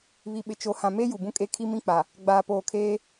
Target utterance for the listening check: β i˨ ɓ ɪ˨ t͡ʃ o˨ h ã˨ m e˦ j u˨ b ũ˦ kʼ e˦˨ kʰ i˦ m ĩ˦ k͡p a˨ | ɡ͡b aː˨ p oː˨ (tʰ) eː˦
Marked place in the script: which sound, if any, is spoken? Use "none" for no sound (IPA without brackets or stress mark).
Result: kʰ